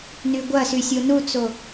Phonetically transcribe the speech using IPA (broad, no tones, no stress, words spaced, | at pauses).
nyɡʷɐsy sʲonut͡so